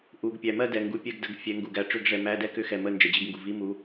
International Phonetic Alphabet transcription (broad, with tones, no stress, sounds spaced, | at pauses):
ʔ u˨˦ ɡ pʲ æ˨ m ɜ˥˧ d ɛ˨ ŋ ɡ u˨˦ pʲ ɛ˥˧ ɡ d ə˨˦ ɡ fʲ ɛ˨˦ ŋ ɡ u˨ ɡ æ˨ ʈ͡ʂ ʏ˥˧ ɡ ʐ ɛ˨˦ m æ˧˥˧ d ɛ˥˧ k ʏ˧˥˧ x ɛ˨ m ə˥˧ n d͡ʒ ɛ˨ d͡ʑ i˥˧ ɡ ŋ ɡ u˨ v i˧˥˧ m u˨˦